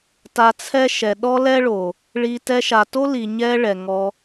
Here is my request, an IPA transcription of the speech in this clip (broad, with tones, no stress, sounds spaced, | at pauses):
t a˧ t͡sʰ ɛ˦ ʃ ɛ˨ ɗ ɔ˦ l ɛ˦ ɭ o˨ | ɭ i˧ t ɛ˧ ʃ a˨ t o˦ l i˨ ɲ ɛ˦ ɭ ɛ˨ ŋ ɔ˧